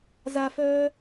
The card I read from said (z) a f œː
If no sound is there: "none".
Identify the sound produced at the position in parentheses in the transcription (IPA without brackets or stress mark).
z